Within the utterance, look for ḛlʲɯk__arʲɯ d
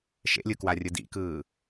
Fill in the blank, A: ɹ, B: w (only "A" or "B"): B